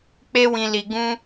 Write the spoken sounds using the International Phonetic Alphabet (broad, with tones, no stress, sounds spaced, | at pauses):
k͡p e˦ w ĩ˧ l i˧ ɡ ũ˦